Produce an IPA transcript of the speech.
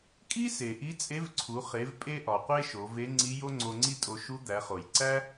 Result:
kʼi˥se˩ ʔi˧˥t͡sʼe˧˥vǀʰu˩˧ χe˩˧vpʼe˧ʔɒ˩qʷe˧ ʃo˩˧ve˧˥ŋ͡ǀi˧˥ jo˥ŋ͡ǀo˧ŋ͡ǀi˥tʼo˧ ʃu˧˥d̪æ˩˧χo˩j ǀæ˥

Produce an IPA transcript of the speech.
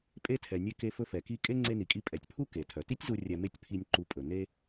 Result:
pʼe˧tʰɛ˩ nʲe˧ke˧ fɵ˧fɛ˩ki˧ kʼe˥ ŋ͡ǀe˧ni˩kʼi˧ pʼɛ˩tʲpʰu˥ ke˩tʰœ˩ti˥tʲzu˧ rʲɛ˧me˥tʲ pʰi˧nʲ ǃu˧pʼɵ˩ ne˥

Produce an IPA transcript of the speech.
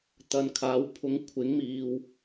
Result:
t̪ɐ˨nkʰaː˨˥w pʰʊ˨˧ŋkʷʰɪ˨˥ŋmiː˨w

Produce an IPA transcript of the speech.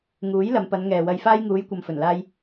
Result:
ŋuː˨˥j lɐ˨˧mpɐ˨˧n ŋɛː˨wɐ˧jfaː˥j ŋuː˨˧jkʷɐ˨mfɵ˨˩n laː˧j

